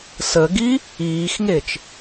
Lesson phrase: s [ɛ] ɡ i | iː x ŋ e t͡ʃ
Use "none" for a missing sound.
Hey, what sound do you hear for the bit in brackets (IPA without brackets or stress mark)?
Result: ə